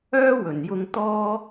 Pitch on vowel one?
high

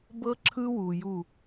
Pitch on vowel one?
high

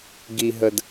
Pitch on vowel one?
low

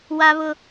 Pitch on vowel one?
high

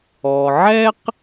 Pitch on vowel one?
low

